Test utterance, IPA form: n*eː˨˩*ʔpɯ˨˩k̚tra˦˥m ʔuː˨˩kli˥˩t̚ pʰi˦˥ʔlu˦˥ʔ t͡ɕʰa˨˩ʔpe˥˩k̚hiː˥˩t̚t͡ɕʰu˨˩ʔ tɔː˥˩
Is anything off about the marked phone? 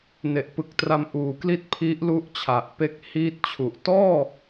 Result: yes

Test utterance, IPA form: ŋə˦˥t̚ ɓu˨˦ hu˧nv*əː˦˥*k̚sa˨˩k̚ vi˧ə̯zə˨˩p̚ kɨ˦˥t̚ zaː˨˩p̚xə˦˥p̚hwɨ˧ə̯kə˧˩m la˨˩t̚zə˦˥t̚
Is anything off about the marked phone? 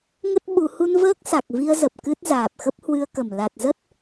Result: no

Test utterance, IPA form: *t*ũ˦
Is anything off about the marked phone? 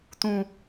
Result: no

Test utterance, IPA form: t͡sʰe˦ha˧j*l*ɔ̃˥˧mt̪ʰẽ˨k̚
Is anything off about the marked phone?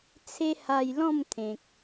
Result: no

